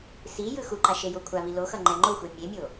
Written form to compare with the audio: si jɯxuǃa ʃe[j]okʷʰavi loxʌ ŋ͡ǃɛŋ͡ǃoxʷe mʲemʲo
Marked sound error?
no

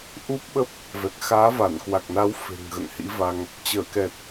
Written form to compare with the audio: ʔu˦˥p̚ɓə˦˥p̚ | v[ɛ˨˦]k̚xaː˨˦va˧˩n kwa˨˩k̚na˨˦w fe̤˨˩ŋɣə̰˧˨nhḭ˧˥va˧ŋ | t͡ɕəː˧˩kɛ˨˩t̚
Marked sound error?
yes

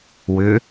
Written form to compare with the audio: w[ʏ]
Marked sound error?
no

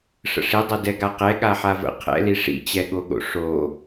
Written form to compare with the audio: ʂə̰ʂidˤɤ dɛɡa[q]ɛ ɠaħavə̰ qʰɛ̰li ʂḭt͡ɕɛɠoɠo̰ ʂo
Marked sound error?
no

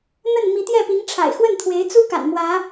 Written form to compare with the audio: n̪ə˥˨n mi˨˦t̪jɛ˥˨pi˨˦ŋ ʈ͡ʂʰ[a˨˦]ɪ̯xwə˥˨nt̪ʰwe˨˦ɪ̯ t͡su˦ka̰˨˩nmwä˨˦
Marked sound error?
yes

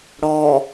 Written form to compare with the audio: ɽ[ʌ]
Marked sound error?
yes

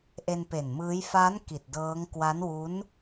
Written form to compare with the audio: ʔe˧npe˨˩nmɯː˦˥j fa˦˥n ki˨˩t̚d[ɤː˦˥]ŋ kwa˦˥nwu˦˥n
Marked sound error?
no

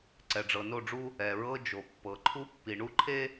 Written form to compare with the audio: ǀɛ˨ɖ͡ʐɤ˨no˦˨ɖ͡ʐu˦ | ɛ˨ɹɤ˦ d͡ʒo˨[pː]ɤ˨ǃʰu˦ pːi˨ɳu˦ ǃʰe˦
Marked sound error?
no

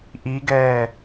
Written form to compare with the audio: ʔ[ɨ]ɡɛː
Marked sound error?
yes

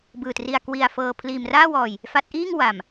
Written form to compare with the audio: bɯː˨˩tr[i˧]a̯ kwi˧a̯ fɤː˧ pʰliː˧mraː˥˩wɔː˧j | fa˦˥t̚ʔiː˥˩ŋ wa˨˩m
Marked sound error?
no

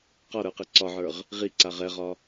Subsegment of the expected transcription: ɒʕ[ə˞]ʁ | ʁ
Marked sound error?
no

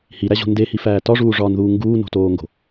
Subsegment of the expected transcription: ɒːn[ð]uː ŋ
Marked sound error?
no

